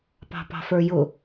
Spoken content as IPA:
p ɑ̤ p ɑ̤ f ə˞ j ʊ

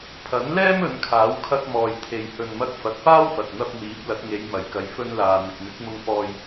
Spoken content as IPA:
pʰ ɐ˨˥ n l ɛː˥ m ɵ˨˧ n kʰ aː˨˥ w kʰ ɐ˧ k̚ m ɔː˨ j t̪ʰ e˨ j h ɵ˨ n m ɐ˧ k̚ f ɐ˨ t̚ p aː˥ w f ɐ˨ t̚ n̪ ɐ˧ p̚ m iː˨˥ p̚ l ɐ˨˥ t̚ ŋ e˨˧ j m ɐ˨ j k ɐ˨˧ j f ɵ˧ n l aː˨ n̪ ɪ˨ k̚ n̪ ɪ˨˥ k̚ m ʊ˧ ŋ f ɔː˧ j

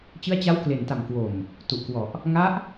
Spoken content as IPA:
t͡ɕ ɯ˦˥ a̯ t͡ɕ a˦˥ w k l e˨˩ n t a˨˩ m k w o˨˩ m | t u˨˩ ʔ k w ɔ˨˩ ʔ | ŋ a˦˥ ʔ

